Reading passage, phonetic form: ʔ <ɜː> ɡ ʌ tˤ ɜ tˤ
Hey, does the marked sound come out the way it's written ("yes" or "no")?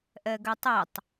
no